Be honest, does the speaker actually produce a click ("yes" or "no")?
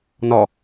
no